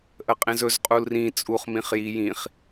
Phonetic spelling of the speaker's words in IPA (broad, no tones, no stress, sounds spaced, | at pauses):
ʔ ə qʼ ẽ z ɵ z qʼ u l r ĩ t͡sʼ u χ m ĩ χ j i j ĩ χ